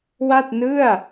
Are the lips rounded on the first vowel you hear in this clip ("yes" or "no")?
no